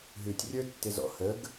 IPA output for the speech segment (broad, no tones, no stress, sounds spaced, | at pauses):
ɦ ʉ tʲ rʲ ə˞ tː ɪ z ɔ̰ h ə ɡ